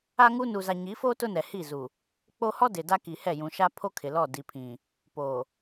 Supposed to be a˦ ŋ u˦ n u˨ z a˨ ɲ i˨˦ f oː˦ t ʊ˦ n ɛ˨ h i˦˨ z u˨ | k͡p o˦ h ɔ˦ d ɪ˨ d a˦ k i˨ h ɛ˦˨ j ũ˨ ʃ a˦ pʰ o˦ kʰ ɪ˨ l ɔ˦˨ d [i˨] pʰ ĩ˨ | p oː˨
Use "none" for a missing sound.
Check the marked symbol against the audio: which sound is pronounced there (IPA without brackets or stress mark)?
i˨